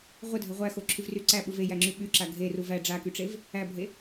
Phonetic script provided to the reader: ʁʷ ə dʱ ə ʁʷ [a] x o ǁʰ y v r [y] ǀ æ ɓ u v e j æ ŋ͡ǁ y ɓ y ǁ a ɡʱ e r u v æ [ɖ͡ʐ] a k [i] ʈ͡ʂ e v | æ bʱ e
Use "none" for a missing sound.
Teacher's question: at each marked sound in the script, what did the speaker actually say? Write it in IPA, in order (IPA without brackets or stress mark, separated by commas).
æ, y, ɖ͡ʐ, y